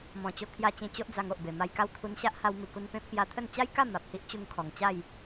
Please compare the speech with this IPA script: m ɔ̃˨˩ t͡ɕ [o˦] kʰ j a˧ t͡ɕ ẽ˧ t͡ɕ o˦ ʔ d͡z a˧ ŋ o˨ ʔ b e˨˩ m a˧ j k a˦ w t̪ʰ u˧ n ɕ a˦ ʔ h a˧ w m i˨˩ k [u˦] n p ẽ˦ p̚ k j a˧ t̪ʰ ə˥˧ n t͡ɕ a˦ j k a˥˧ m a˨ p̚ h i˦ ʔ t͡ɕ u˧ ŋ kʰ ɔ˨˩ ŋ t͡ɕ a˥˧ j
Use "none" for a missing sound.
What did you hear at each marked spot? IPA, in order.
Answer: o˧, u˧

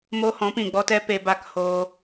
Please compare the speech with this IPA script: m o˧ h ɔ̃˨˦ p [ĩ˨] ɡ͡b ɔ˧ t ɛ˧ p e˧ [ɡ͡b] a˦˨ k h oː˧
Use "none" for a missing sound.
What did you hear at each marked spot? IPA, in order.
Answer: ĩ˨, b

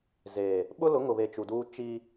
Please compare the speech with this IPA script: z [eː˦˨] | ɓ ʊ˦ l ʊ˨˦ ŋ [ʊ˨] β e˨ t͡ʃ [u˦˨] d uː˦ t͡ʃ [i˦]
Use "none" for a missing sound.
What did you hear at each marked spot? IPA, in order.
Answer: eː˨, ʊ˨, u˨, i˦

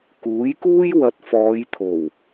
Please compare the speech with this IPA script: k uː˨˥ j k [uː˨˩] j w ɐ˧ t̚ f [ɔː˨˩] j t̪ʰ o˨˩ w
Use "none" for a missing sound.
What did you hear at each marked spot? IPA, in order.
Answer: uː˥, ɔː˨˧

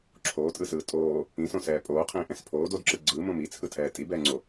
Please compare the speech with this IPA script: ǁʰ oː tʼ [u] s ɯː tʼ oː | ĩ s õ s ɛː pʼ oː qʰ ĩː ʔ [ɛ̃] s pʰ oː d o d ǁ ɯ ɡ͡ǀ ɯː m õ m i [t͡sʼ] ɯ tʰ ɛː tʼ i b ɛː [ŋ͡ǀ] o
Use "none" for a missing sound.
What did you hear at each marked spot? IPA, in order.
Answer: ɯ, ɛ̃, t͡sʰ, ŋ͡ǀ

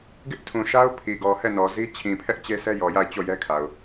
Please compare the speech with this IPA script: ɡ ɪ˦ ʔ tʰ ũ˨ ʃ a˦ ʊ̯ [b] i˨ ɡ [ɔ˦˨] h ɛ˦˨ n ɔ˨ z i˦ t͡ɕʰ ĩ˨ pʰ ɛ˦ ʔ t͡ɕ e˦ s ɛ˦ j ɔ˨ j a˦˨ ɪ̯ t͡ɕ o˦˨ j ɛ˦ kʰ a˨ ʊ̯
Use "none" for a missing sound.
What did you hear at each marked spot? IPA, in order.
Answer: pʰ, ɔ˨

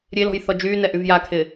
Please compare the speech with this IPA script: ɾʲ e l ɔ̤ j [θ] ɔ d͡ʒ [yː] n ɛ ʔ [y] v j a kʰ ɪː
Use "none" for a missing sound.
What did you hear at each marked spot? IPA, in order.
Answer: θ, yː, y

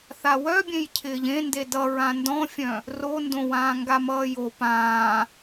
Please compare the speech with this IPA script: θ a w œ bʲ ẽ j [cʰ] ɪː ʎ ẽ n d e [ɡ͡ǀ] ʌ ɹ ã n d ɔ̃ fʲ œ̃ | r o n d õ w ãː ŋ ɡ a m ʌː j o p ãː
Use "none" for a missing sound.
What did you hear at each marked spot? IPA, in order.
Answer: cʰ, d

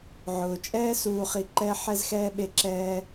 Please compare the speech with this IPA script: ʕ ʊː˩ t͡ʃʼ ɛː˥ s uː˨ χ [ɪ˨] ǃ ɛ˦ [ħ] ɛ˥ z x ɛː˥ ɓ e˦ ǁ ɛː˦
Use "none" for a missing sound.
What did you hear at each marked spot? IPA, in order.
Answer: i˨, ħ

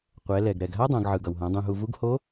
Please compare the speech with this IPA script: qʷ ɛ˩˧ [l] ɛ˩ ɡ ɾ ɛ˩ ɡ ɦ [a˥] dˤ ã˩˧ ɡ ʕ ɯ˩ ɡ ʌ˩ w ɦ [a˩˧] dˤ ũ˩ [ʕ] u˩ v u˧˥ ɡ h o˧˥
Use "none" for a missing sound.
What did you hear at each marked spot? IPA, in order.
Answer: l, a˥, ã˩˧, ɦ

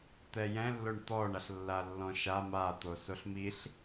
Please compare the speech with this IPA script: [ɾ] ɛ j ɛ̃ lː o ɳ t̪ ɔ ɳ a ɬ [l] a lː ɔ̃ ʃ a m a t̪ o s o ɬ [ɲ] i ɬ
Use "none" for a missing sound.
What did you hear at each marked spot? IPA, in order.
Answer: t̪, lː, m

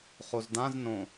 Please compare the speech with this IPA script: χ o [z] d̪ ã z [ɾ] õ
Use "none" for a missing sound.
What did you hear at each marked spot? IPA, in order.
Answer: z, n

